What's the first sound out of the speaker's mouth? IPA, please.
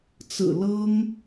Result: t͡s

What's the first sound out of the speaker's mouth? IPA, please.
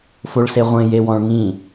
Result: f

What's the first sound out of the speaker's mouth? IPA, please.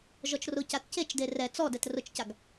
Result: ʒ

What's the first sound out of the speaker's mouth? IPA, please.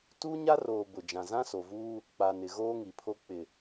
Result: t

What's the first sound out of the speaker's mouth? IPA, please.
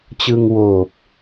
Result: t͡ɕ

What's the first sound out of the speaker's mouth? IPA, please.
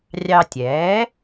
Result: rʲ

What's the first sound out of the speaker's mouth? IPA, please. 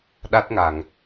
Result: ɗ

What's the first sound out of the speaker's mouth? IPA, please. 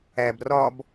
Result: æ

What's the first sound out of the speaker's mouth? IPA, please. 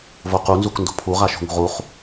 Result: v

